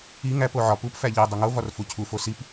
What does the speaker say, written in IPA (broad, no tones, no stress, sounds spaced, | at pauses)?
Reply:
i ŋ æ p o ʕ ɒ p u p f æ ʎ i dˤ u ŋ o v ɒ r f u cʰ u f o s i p